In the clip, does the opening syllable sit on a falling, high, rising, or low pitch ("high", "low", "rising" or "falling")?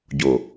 low